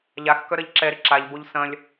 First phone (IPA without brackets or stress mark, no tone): ʎ